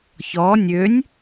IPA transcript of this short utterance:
çɔ nʲønʲ

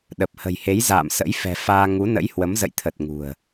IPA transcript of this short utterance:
ɗə˨˩p̚hə̤˨˩jhe˨˦jza̰ː˧˨m sə̰˧˥jfɛ̤˨˩faː˧ ŋu˨˦nə̰˧˥jhwə˨˦m zə̰˧˨jt̪ʰə˨˩t̚ ŋṳ˨˩ə̯

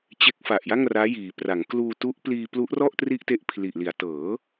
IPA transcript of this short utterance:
t͡ɕe˦˥k̚fa˨˩ʔ ja˥˩ŋraː˦˥jiː˩˦pra˩˦ŋ kluː˧tu˦˥ʔ pliː˧plu˦˥ʔrɔ˥˩ʔ tri˥˩ʔte˥˩ʔpʰli˨˩ʔli˩˦a̯ tɤː˩˦

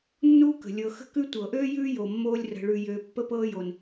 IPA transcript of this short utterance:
nːuː˥kə̤˩ lʲɤ˨xə̤˥kʉ˥ tʷɤ˩ʔøː˥jʉː˦jo˩ mːoː˦lʲrə̤˨ɭʉ˨jøː˨ pːə˥pɤː˥ jo˩n

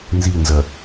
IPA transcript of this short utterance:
nzinzɐ

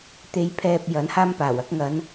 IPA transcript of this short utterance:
t̪e˧jpʰɛː˧p̚ jɐ˨˥nhaː˥mpaː˨˩wɐ˥k̚ ŋɐ˨˧n

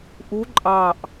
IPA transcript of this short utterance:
ʔu ǃʼɑʔ

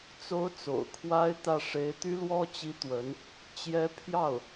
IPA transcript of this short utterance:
t͡so˧˥ʊ̯ t͡so̰˨˩ʊ̯kʰwa˥ɪ̯t̪ä˥˩ ʂe˧˥ɪ̯t̪y˥lwɔ˥ t͡ɕi˥t̪wə˧˥n | t͡ɕjɛ˧˥ pʰjɑ˥˩ʊ̯

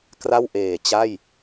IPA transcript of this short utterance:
kra˥˩wʔeː˨˩t͡ɕa˥˩j

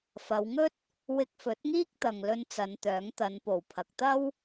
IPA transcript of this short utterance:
fɐ˨˧wŋɵ˥t̚ | wɪ˧k̚fɵ˨˥t̚ ŋiː˥k̚t̪ɐ˨ŋlɵ˧n t͡sɐ˨˧nt̪œː˨˥ŋt̪ɐ˨˧npo˨˩w pʰɐ˨k̚t̪ɐ˥w

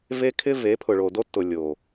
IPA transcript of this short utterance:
ve˦kʰɪ˦ ve˨˦pʰʊ˨ɭo˨ do˦tːʊ˨ lʲo˨

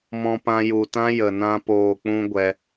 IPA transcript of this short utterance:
mɔ̃˧pã˧ju˨ tã˦jə˨nã˧poː˨ k͡pũ˦ɡʷɛ˧

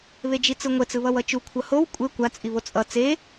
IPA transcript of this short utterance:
βed͡ʒit͡sɯŋʷɛt͡s ɯβʌwʌt͡ʃu kʷʰʌhow kʷʼe kʷa t͡sʼiβot͡sʼʌ t͡se

